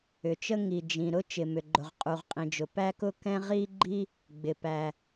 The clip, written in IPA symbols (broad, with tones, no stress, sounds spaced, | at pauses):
ʏ˩ t͡ʃ ə˥ ŋ i˩ d͡ʒ ĩ˩ ɾ ʊ˥ t͡ʃ ɪ˩ m ʏ˩ ɡ͡ǃ ʊ˩ ʁ qʼ u˩ ʁ qʼ ĩ˩ d͡ʒ ʊ˩ p æ˥ k ʊ˥ k ɛ̃˥ ʁ i˥ ɡ͡ǃ i˥ | ɡ͡b ɪ˩ p æ˩